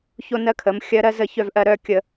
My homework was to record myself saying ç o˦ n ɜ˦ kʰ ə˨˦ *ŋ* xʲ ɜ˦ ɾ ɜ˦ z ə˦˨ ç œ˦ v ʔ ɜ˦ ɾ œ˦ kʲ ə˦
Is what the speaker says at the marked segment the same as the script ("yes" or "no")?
no